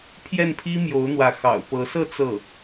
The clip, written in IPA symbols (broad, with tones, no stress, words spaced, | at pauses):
pʰjɛ˥˩npʰi˥ mjo˧˥ʊ̯n̪wä˧˥ xɑ̰˨˩ʊ̯pɤ˧˥ sɤ˥˧ t͡sɤ˥˩